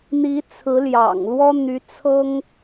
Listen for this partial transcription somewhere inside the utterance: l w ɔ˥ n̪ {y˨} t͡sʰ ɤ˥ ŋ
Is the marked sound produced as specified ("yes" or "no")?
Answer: no